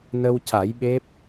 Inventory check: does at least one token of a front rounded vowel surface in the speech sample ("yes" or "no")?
no